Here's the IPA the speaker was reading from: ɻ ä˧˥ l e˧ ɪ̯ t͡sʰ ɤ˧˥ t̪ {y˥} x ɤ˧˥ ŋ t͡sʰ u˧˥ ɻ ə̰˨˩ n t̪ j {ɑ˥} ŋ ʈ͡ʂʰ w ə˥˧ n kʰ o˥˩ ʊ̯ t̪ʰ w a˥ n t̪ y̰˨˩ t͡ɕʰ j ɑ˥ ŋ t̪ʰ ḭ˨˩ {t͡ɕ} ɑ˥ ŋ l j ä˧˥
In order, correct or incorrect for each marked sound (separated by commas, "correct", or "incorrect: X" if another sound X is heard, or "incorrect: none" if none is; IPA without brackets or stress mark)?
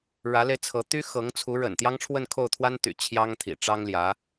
correct, correct, incorrect: ʈ͡ʂ